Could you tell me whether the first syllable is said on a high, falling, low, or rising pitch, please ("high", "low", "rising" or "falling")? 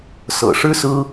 low